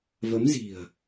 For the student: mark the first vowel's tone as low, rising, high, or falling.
rising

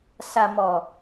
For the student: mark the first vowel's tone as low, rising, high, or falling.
low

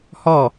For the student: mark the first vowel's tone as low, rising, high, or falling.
falling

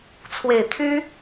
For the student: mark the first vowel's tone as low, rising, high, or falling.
low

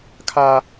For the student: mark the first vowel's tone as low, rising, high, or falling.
high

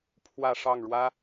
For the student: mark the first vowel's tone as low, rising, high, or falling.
falling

